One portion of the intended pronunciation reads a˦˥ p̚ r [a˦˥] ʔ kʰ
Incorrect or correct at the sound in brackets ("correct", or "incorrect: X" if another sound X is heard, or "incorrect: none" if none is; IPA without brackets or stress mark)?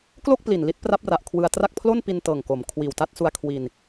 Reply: incorrect: a˨˩